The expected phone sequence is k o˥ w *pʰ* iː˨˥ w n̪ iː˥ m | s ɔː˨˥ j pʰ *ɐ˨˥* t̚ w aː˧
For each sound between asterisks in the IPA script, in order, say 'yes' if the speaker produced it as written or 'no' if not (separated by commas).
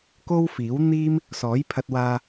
no, no